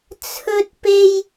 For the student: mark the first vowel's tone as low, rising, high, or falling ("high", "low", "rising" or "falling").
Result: high